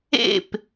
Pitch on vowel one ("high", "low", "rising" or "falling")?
falling